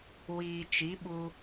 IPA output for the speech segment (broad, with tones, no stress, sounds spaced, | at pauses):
w iː˨ t͡ʃ i˨˦ ɓ u˧